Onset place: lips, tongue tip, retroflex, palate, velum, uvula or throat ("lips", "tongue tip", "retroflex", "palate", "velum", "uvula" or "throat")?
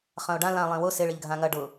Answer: uvula